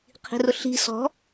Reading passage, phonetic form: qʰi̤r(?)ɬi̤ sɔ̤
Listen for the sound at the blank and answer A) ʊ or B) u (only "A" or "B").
A